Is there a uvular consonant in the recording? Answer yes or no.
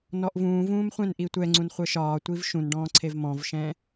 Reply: yes